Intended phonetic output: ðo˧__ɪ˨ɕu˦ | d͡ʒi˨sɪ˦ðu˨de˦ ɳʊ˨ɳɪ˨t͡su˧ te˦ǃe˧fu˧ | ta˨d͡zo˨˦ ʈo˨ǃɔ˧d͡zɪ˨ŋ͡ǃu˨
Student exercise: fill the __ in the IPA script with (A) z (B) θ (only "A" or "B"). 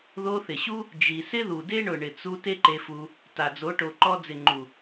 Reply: B